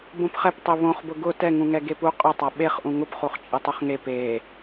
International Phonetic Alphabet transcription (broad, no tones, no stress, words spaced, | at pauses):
bõpχɛptˤe βõχbʊ ɡʊ tɛŋũŋɛ ɡepu qʼʊ tˤaɓeχʔũ ŋʊpχuχt͡ʃʼɛ tˤuχŋe pe